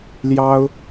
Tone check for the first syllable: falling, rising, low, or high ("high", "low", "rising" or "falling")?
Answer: high